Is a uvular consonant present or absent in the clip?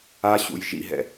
absent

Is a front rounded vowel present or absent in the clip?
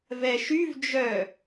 present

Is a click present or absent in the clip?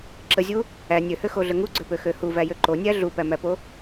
present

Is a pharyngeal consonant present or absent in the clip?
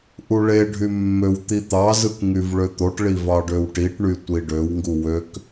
absent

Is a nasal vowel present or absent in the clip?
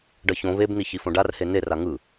present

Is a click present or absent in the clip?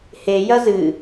absent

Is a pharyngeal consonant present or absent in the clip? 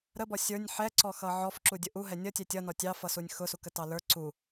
present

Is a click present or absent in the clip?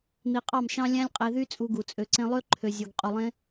present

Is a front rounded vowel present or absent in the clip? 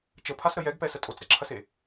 absent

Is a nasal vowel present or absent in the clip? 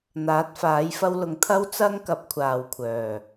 absent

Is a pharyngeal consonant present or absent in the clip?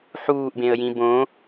present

